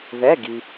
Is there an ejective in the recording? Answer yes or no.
no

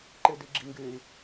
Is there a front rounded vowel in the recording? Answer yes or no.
yes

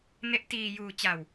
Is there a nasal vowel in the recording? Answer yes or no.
no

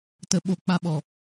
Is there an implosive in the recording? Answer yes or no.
yes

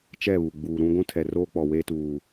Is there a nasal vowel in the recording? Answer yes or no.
yes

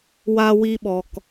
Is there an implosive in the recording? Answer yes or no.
yes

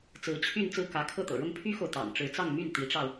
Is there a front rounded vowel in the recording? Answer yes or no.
yes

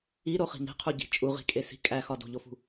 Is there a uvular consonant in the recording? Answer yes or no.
yes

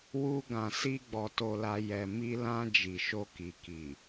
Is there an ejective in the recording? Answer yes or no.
no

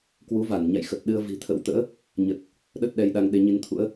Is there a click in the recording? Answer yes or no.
no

